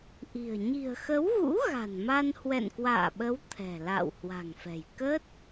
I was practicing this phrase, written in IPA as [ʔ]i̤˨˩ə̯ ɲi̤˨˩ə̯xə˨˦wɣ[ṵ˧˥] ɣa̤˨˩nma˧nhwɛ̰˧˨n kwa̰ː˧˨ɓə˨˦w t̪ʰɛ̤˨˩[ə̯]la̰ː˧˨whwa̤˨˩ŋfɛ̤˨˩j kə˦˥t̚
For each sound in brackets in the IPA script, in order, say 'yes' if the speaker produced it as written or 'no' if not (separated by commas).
yes, yes, no